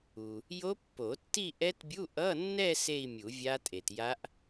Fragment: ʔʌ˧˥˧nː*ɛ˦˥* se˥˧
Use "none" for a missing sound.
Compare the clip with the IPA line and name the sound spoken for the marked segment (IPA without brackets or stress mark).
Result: ɛ˥˧